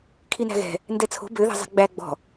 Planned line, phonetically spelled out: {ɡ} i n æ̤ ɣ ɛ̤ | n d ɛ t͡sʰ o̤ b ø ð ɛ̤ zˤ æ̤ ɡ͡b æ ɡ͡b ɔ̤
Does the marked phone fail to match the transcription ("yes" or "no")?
yes